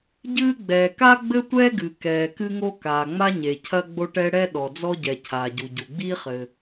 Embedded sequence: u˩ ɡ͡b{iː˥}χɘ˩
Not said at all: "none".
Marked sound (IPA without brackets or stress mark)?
iː˥